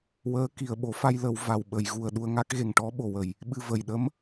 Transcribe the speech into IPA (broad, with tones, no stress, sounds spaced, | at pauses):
w əː˧˥ k i˨˩ ə̯ ɓ o˨˩˦ f a˧ j l ə˨˩˨ w v a˨˩ w ɓ ə˨˩˨ j ɣ u˨˩ ə̯ ɗ u˧ ə̯ ŋ a˦˥ k̚ ɣ e˨˩ ŋ ʈ ɔ˧˥ ɓ o˨˩ w ə˨˩ j | ɓ ɨ˧ v ə˨˩ j ɗ ə˧˥ m